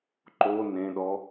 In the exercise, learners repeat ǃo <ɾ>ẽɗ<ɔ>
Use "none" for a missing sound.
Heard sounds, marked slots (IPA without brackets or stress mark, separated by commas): n, ɔ